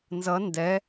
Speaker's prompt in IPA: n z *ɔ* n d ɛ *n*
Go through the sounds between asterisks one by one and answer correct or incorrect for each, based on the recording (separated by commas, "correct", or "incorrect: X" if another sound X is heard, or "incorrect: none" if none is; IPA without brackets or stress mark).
incorrect: ʌ, incorrect: none